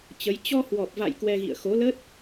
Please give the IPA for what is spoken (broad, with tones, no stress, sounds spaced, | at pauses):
t͡ɕ ə˨˦ j t͡ɕ ɔ˧ h w ɔ˨˩ p̚ v a̰˧˨ j k w ɛ˧ ɣ ḭ˧˨ ə̯ x o˨˦ l ə˦˥ t̚